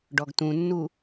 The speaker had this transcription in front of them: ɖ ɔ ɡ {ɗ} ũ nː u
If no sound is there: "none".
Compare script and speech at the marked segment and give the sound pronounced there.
t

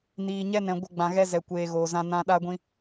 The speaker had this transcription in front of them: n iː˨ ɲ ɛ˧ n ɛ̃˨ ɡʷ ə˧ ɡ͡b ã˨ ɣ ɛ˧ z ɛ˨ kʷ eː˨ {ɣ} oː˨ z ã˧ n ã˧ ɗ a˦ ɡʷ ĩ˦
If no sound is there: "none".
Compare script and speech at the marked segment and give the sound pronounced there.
ɣ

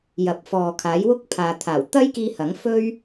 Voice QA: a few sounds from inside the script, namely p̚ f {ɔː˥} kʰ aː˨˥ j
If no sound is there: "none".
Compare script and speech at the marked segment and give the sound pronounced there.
ɔː˨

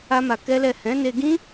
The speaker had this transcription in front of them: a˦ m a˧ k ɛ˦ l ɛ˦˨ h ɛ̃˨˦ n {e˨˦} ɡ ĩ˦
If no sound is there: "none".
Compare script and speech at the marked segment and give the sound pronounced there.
e˧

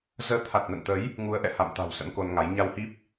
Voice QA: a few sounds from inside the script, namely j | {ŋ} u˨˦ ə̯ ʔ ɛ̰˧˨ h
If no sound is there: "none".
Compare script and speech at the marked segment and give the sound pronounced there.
ŋ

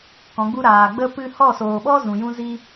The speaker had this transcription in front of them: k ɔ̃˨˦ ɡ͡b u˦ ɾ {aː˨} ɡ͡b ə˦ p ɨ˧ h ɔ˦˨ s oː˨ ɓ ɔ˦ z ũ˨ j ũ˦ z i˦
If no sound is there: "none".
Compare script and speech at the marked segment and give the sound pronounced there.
aː˨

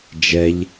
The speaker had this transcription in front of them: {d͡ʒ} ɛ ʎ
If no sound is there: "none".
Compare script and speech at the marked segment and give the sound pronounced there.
d͡ʒ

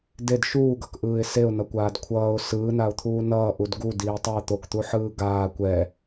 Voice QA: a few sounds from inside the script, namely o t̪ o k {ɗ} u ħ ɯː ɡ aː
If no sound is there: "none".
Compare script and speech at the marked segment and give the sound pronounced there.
t̪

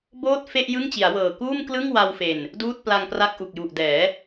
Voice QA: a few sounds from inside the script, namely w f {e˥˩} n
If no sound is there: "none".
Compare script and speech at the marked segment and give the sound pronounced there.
e˨˩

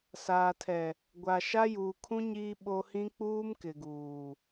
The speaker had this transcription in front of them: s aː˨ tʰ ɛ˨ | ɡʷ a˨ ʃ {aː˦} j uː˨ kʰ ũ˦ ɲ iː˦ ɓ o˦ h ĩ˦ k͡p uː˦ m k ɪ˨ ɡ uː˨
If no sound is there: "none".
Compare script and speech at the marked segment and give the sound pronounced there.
a˦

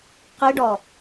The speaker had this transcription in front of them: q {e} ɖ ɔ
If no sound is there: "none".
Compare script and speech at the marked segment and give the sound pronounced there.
i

